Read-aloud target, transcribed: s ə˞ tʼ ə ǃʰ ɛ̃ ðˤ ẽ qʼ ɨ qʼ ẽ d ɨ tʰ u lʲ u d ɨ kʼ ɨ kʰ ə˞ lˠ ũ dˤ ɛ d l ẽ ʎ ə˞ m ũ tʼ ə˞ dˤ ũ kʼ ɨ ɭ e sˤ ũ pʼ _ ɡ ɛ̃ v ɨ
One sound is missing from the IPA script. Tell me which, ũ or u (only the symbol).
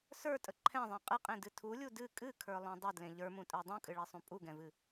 u